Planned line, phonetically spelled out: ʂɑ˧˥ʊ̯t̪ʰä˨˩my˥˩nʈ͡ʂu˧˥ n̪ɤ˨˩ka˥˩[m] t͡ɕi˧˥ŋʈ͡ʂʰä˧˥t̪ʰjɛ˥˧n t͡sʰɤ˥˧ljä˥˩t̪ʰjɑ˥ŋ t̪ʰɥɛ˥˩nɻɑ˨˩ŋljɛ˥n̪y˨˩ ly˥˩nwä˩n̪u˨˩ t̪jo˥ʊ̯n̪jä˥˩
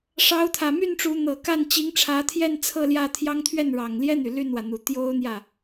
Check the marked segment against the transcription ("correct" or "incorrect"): incorrect